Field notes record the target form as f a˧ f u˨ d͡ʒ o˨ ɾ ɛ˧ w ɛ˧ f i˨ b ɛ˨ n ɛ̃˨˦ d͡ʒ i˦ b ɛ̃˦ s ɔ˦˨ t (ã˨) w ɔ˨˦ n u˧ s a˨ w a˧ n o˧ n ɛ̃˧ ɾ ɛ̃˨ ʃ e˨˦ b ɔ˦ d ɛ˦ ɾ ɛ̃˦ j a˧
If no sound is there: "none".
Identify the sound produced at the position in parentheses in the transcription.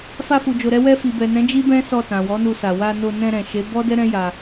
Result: ã˨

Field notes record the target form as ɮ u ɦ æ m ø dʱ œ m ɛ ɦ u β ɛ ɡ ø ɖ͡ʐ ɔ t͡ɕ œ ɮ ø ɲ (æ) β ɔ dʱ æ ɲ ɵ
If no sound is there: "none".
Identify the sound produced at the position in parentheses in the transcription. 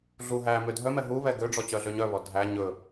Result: œ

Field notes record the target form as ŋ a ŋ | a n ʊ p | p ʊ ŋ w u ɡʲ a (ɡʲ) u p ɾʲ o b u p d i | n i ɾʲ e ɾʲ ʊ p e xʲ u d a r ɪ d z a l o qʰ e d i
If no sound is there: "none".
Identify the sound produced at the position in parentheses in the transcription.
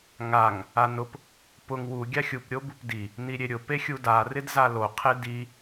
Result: xʲ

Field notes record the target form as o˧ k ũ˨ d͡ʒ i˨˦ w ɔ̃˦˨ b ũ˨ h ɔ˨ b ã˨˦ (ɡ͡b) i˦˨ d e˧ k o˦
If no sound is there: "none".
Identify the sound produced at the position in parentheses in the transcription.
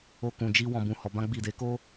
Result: ɡ͡b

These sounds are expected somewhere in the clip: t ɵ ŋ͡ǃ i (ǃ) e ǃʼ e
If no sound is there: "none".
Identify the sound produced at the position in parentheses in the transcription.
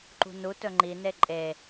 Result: n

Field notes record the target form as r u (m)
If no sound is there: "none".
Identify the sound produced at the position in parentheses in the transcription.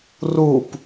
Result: p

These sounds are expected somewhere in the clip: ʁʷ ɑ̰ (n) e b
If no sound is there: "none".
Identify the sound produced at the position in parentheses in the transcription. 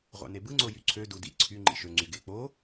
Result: n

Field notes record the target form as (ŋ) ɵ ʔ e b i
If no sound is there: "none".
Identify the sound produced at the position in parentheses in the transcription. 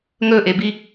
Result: ŋ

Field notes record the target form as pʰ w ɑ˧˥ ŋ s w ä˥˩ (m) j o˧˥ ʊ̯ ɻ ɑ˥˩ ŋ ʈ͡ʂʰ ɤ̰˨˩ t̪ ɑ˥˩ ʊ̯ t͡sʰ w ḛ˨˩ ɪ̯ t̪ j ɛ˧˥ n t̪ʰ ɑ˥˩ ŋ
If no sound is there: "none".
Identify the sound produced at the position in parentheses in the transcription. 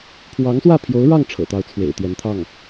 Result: pʰ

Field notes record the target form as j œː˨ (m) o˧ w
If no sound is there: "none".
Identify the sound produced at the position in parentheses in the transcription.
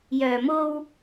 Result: m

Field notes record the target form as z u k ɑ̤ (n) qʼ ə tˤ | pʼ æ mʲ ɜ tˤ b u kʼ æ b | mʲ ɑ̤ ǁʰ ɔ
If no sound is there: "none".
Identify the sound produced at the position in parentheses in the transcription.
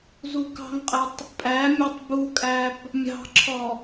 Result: ŋ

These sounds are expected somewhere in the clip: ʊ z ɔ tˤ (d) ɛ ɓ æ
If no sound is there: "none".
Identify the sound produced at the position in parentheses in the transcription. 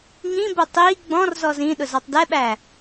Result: d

